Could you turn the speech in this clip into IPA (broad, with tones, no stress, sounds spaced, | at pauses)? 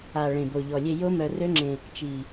a˨˩ ɭ ẽ˨˩ b o˨˩ ʎ ɔ˨˩ lʲ e˧ j o˦˥ m œ˧ r ø˦˥ ŋ͡ǁ ẽ˧ | t͡ʃ i˨˩